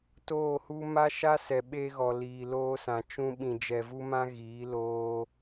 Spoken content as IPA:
t oː˦˨ h u˦ m a˦ ʃ a˦ s ɛ˨ ɓ e˧ ɣ ɔ˨ l iː˨ l oː˧ s ã˨ t͡ʃ ũ˧ ɓ ĩ˨ d͡ʒ ɛ˨ v u˧ m ã˧ ɣ iː˨˦ l oː˧

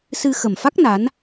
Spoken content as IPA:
s ɨ˧ x ə˨˩ m f a˦˥ k̚ n a˨˦ n

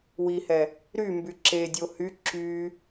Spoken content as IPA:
w i h ɛ | ɾ y m b y ǁ e dʲ o h y ǁ y

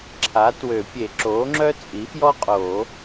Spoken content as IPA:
ǁʰ a˩˥ t w ø˨˩˦ pʲ e˨˩˦ ǁ oː˩˥ ŋ͡ǁ œ˥ t͡sʼ i˩˥ f j ɔ˥ qʼ oː˨˩˦

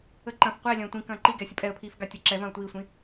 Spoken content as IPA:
ə ǃ ɐ̃ f qʷ ɛ lʲ ɐ̃ː tʷ ĩ k ɐ̃ː ǃ i ɡ ɛː sʲ ə pʼ ɛ ə̯ pʰ iː f ɡ a tʲ ɐ ǁ ɛ v ɐ̃ː ʊ̯ tʷ iː sʷ ĩ

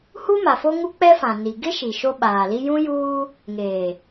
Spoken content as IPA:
h u˦ m a˨ f o˦ ŋ u˦ k͡p ɛ˦ f ã˨ n i˨ ɡ ɪ˦ ʃ i˨ ʃ o˦ ɓ aː˨ l i˦ j ũ˦ j uː˦ | ŋ eː˨

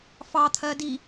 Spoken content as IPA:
f ɑ t̪ʰ ɜ d i

